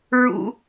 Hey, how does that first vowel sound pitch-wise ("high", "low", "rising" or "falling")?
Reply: high